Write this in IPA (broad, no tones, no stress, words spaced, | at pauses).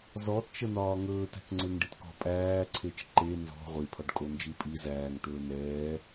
zɔtt͡ʃə n̪ɒːŋɵːt æ̤kŋ͡ǀeŋɖitkɔ̤ pʼæːǀʰet͡ʃ ǃe nzɔ̤ ʁʷipʰɒɖkʼo nd͡ʒipʼi zæːŋ tɵːn̪ɛː